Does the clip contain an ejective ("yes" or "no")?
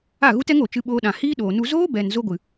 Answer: no